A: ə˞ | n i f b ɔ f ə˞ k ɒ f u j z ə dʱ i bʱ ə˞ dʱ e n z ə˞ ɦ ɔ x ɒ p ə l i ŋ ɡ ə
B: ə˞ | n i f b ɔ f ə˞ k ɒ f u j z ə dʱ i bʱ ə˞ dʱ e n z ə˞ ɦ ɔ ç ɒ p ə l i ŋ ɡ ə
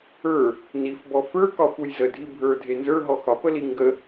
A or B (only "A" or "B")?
A